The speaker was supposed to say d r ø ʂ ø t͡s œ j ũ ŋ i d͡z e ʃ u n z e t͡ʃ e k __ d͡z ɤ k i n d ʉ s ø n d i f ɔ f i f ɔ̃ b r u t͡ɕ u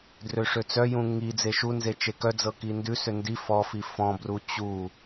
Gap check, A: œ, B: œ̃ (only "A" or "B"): A